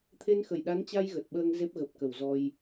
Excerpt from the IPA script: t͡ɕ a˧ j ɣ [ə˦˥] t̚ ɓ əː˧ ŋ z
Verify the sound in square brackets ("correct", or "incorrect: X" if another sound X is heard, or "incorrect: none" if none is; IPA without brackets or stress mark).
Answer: incorrect: ə˨˩